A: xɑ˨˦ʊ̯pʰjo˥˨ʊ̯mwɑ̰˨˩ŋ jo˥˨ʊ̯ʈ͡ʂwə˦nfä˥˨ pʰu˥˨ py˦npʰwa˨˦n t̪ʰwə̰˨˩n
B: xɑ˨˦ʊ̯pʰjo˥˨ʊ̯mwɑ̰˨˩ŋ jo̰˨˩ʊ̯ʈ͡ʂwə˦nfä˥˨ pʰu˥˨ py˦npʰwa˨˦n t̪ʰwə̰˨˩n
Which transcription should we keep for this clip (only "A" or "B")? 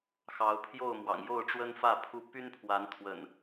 A